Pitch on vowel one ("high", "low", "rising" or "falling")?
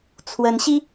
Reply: rising